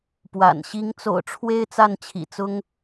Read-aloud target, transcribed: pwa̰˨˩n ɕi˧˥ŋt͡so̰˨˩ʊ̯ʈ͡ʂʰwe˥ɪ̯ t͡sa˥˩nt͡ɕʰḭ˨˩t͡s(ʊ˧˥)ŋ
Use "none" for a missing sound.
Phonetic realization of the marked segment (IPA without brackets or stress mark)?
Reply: ʊ˥